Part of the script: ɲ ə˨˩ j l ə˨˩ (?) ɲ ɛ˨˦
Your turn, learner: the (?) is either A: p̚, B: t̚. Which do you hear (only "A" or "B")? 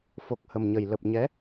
A